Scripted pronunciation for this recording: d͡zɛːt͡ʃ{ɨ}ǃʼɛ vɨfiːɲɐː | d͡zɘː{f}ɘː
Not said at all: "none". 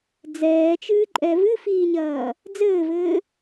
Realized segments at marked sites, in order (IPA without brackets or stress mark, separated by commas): ɨː, v